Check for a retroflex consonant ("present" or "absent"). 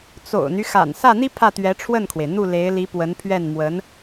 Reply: present